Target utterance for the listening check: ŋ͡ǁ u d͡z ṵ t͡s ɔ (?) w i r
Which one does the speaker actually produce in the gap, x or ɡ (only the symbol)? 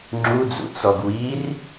ɡ